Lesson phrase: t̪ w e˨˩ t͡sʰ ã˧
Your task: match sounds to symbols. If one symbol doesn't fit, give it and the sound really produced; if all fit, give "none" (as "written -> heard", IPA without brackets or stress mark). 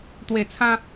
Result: none